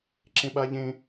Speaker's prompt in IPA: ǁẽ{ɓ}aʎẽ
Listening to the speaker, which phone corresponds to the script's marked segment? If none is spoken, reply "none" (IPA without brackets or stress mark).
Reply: ɓ